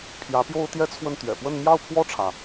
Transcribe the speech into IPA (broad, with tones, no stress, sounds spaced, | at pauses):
pʰ j ä˧˥ p j o˥ ʊ̯ t̪ j ɛ˥ t͡sʰ w ə˥˩ n t̪ ɥ ɛ̰˨˩ p w ə˥˧ n m j ɑ˥˧ ʊ̯ pʰ w ɔ˥˩ ʈ͡ʂʰ ä˩